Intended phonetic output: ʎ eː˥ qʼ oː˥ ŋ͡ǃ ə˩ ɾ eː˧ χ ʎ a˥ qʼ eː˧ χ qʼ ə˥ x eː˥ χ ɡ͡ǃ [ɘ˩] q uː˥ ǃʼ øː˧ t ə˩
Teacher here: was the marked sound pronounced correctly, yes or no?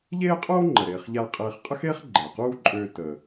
no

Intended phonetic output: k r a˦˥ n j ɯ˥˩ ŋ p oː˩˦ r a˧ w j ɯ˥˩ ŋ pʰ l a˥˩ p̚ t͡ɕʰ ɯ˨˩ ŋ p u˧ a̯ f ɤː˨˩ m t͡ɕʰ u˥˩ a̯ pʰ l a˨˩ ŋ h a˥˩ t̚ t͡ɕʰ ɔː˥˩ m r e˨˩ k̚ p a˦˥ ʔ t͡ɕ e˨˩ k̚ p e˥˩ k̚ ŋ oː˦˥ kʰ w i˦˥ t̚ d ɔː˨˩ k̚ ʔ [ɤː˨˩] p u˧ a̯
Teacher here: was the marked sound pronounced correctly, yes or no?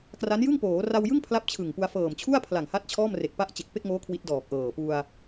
yes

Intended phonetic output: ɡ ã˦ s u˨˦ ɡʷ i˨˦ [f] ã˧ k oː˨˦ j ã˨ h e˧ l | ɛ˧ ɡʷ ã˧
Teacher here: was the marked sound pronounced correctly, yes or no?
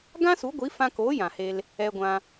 yes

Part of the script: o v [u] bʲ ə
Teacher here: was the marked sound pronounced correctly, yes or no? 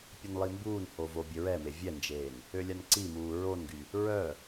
no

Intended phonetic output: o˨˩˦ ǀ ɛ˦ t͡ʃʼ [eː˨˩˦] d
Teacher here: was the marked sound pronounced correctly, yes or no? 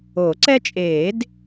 yes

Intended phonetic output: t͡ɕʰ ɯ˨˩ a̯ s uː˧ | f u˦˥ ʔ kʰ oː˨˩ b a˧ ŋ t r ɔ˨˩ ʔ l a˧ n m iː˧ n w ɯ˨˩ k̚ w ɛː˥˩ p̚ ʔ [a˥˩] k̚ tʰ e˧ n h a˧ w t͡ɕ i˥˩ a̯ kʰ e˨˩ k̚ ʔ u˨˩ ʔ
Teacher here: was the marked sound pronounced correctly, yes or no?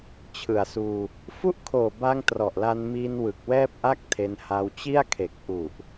yes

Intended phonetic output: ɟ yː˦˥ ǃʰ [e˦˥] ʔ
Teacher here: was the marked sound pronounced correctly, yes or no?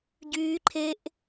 yes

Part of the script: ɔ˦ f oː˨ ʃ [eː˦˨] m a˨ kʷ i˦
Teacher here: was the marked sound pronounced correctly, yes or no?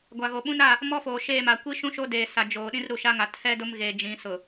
yes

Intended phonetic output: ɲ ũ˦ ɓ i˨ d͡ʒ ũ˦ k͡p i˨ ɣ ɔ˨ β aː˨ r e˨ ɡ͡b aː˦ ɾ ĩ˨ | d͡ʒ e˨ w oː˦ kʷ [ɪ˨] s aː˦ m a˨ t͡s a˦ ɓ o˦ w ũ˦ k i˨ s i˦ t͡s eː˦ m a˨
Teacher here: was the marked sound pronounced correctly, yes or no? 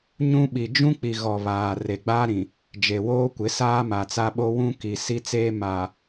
no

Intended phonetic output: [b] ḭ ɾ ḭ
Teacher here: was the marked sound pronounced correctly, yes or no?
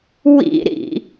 no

